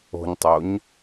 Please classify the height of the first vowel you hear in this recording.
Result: mid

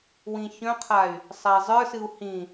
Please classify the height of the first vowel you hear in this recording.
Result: high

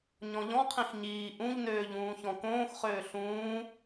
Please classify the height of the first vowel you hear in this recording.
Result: mid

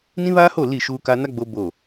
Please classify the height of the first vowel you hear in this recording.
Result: high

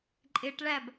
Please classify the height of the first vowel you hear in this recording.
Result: high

